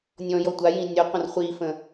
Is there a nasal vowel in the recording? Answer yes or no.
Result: yes